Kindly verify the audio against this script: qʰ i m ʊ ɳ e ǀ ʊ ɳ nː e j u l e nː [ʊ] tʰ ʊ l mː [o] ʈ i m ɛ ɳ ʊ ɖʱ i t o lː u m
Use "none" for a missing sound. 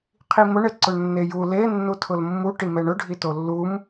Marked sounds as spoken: u, u

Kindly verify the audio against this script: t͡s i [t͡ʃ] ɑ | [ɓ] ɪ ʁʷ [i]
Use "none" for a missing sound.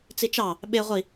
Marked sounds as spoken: t͡ʃ, ɓ, i

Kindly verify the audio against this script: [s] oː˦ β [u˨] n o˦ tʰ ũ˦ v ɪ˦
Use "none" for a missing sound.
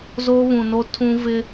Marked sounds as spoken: z, ũ˨

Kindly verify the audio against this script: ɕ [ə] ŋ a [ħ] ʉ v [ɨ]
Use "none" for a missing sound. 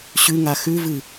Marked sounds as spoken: ʉ, x, ɨ

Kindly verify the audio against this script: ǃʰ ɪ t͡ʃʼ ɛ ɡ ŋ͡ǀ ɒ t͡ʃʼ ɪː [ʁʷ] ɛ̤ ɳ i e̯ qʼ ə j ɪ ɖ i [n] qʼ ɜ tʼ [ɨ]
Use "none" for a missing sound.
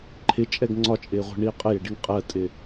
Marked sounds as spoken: ʁʷ, ŋ, ɪ

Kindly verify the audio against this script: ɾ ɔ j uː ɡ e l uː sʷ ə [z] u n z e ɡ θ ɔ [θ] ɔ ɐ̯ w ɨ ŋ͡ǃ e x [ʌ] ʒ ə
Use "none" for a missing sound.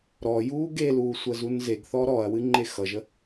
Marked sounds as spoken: z, ɾ, ʌ

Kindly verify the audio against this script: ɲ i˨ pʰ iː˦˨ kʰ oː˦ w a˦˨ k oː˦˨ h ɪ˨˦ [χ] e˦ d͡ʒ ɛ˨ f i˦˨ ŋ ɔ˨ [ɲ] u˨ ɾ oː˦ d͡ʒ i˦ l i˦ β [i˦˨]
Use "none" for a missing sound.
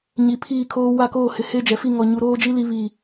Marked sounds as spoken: h, ɲ, i˦˨

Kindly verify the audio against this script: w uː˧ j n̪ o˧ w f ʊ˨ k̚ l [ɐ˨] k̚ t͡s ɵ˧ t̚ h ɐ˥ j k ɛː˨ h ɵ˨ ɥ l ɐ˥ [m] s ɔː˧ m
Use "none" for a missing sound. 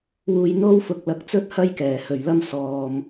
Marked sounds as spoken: ɐ˨, m

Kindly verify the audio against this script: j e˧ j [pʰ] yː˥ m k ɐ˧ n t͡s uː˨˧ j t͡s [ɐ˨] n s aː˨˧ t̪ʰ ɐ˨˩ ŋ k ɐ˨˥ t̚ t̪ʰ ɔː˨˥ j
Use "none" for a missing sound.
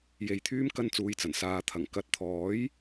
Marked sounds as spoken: t̪ʰ, ɐ˨˩

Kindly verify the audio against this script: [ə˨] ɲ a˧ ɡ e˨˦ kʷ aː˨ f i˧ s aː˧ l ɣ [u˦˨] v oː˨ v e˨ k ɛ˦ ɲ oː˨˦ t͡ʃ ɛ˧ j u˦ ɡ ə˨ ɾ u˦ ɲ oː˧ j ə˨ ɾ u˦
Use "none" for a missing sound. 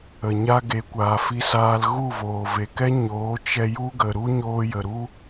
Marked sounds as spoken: ə˨, u˦˨

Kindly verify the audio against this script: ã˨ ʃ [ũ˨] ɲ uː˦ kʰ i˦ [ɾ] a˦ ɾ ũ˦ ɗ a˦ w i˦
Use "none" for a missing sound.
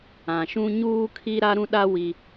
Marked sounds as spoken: ũ˦, ɾ

